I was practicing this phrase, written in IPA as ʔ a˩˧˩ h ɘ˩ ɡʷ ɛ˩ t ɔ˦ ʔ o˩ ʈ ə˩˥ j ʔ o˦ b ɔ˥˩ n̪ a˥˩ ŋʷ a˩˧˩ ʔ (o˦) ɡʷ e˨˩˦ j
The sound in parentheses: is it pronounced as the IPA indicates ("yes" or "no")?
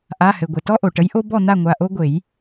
yes